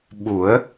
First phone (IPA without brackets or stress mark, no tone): ɓ